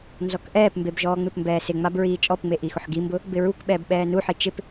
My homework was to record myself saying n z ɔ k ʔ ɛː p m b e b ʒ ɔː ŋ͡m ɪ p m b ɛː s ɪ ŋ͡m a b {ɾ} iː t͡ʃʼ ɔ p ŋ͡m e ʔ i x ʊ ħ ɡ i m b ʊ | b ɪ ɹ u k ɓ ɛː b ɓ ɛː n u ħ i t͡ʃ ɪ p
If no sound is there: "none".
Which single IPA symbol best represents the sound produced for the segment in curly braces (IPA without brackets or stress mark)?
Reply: ɹ